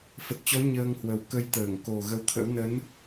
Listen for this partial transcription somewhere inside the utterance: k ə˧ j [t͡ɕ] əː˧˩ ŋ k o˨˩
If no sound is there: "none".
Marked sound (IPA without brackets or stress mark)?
t̪